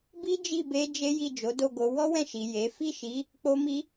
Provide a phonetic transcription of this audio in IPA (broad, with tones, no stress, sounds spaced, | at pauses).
b i˦ d͡ʒ i˦˨ b e˧ d͡ʒ e˦ j i˦˨ d͡ʒ o˨˦ d o˦˨ ɡ o˧ w ɔ˦ w ɛ̃˦˨ ʃ i˨ j e˨˦ f i˦˨ ʃ i˨˦ | k͡p o˧ m i˧